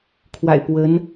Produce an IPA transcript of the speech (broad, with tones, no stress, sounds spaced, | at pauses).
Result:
kʰ w a̰˨˩ ɪ̯ p w ə˧˥ n